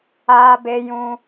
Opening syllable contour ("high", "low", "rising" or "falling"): high